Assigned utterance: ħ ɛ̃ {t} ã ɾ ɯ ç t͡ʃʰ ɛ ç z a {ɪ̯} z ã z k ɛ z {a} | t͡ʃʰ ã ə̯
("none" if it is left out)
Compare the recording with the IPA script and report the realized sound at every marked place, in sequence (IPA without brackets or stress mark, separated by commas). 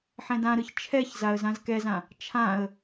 d, ə̯, ã